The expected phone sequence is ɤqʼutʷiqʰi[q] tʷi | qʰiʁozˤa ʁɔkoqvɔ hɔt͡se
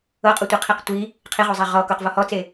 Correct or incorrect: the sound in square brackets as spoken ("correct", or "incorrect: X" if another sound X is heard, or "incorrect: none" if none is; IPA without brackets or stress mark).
correct